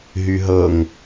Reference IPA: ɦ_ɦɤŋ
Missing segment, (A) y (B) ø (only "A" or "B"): A